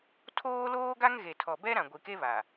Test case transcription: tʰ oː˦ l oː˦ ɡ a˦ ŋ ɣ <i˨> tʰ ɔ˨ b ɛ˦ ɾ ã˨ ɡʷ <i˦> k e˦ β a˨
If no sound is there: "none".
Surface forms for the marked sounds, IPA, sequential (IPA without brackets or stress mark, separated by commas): e˨, i˨